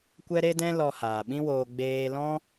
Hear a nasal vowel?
yes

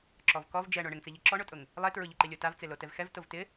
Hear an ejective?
yes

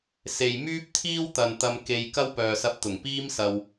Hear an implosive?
no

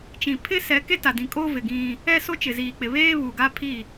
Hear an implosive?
no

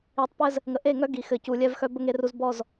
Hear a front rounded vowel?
yes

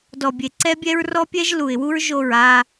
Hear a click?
yes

